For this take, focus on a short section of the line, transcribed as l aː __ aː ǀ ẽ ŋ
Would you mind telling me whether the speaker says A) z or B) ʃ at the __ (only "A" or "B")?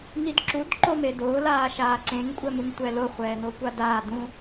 B